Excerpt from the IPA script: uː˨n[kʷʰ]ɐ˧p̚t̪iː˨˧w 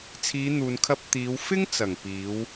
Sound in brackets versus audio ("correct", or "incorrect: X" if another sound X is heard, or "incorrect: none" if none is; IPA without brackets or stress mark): incorrect: kʰ